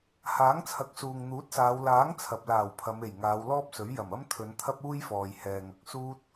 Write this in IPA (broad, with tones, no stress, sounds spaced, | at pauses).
h aː˨˥ ŋ t͡sʰ ɐ˨˥ k̚ s uː˨ ŋ n̪ uː˨˥ t̚ s aː˨˧ w l aː˨˥ ŋ t͡sʰ ɐ˨ p̚ l aː˨˩ w pʰ ɐ˨˧ m e˨˩ j ŋ aː˨˧ w l ɔː˥ p̚ s ɵ˨˥ ɥ j ɐ˨˩ m ɐ˥ m t̪ʰ ɵ˨˧ n t̪ʰ ɐ˥ p̚ uː˥ j f ɔː˨ j h ɛː˨ ŋ ɐ˨ k̚ s uː˥ t̚